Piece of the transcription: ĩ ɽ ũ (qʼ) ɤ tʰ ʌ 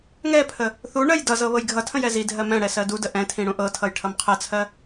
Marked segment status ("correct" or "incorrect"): incorrect